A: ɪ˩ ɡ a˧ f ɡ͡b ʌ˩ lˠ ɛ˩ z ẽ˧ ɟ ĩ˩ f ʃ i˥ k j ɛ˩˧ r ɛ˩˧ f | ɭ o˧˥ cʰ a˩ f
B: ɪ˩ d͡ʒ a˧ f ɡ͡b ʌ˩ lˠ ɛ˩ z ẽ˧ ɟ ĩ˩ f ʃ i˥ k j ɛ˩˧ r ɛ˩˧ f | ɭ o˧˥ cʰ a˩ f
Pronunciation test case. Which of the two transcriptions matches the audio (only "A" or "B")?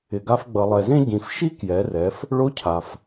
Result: A